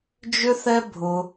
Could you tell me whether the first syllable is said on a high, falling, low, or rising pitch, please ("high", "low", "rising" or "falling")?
high